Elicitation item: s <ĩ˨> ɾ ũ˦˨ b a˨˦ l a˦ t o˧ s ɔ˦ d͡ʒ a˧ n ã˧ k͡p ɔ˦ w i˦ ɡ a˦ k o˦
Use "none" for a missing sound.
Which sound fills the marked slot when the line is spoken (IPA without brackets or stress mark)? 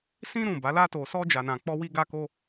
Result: ĩ˦